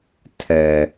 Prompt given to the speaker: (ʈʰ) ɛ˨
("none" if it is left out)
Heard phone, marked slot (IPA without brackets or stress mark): tʰ